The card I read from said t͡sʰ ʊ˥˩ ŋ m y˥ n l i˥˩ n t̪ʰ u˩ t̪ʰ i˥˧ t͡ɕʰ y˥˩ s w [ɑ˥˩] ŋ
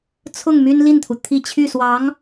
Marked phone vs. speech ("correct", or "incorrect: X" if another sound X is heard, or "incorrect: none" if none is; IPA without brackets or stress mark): incorrect: ɑ˧˥